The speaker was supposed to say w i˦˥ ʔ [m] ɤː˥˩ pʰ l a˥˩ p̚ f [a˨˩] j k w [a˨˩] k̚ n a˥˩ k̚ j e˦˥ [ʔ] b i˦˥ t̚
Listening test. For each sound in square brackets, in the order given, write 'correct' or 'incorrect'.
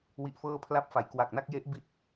incorrect: f, incorrect: a˩˦, correct, correct

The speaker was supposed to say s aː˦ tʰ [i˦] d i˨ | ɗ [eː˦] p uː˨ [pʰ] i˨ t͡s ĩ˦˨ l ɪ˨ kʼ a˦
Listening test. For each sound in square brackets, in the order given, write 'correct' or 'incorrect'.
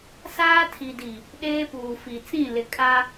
incorrect: i˨, correct, incorrect: f

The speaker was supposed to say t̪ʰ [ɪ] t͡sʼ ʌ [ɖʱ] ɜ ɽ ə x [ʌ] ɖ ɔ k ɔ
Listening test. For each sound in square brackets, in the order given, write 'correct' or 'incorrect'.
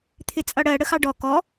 correct, incorrect: ɽ, incorrect: ɑ

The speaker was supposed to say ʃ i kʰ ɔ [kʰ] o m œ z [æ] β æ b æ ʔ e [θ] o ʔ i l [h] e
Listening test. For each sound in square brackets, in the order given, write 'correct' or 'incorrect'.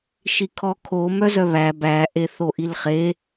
correct, incorrect: œ, correct, incorrect: χ

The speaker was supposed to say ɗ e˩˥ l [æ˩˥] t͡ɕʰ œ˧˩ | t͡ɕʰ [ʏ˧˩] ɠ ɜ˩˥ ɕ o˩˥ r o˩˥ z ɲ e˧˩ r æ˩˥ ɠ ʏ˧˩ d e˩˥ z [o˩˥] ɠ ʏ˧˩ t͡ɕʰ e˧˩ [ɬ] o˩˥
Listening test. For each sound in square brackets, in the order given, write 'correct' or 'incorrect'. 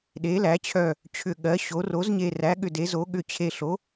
correct, correct, correct, correct

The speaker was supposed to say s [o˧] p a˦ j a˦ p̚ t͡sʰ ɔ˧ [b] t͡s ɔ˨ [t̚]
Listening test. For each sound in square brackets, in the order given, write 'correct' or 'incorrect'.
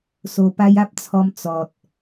correct, incorrect: m, correct

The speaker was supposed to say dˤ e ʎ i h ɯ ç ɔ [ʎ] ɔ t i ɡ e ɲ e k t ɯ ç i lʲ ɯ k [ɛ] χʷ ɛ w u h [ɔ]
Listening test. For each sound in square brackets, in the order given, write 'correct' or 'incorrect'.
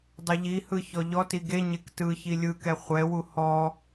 correct, correct, correct

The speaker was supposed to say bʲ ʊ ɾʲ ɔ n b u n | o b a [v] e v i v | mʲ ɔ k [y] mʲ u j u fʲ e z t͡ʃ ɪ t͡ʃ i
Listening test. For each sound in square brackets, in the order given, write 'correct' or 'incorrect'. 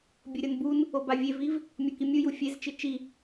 incorrect: vʲ, incorrect: i

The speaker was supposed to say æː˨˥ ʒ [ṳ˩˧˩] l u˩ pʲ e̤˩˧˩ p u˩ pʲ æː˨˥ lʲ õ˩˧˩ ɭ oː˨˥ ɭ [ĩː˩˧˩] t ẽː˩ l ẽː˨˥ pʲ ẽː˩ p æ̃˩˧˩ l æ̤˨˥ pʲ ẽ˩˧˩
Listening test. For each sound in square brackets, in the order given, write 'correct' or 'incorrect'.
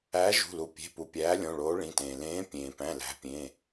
correct, incorrect: ĩ˩˧˩

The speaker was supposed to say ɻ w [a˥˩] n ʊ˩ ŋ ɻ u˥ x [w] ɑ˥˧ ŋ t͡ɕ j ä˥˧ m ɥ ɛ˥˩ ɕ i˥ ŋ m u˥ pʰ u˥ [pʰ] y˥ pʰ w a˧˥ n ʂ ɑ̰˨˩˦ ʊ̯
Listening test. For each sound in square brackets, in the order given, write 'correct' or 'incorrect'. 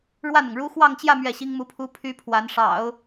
correct, correct, correct

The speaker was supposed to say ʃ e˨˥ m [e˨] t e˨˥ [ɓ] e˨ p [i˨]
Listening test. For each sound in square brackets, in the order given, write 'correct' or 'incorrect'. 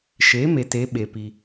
correct, correct, correct

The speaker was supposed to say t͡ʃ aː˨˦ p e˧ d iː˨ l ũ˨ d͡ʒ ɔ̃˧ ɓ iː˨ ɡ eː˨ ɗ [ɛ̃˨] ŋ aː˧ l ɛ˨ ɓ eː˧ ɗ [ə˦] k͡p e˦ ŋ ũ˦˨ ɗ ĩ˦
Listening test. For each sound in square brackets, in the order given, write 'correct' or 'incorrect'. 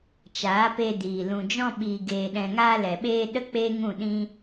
correct, correct

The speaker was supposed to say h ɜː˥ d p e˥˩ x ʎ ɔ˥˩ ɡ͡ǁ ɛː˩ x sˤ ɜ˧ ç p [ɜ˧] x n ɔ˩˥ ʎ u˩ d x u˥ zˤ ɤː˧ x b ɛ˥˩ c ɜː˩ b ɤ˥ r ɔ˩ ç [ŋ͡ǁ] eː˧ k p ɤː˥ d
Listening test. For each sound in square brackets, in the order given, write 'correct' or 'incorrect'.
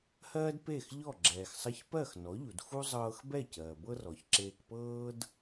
incorrect: ɜ˥˩, incorrect: ǁ

